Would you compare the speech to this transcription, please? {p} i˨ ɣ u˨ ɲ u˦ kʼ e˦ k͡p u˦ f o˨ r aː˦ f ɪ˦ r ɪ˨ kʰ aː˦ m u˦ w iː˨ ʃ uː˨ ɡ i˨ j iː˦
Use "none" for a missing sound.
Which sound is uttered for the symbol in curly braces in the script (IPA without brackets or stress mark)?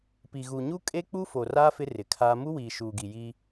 p